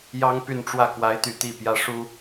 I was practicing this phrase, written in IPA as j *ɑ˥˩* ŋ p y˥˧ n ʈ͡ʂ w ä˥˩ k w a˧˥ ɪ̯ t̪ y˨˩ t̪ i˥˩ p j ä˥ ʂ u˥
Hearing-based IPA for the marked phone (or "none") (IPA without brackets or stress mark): ɑ˥